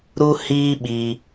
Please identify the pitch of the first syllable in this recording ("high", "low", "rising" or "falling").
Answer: high